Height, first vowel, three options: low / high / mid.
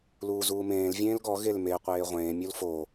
high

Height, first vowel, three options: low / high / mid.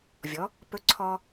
mid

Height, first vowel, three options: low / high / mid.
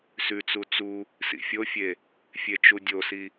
high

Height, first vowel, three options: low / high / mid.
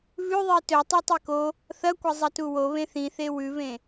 high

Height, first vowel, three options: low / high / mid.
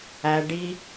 low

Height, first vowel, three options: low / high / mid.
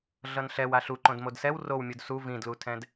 mid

